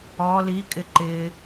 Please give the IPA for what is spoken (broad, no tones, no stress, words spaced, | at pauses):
ɔ li kʼɪǃɪ